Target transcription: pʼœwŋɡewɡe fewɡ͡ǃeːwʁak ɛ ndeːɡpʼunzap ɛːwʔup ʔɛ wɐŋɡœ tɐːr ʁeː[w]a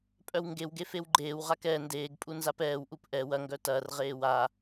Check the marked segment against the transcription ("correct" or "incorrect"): correct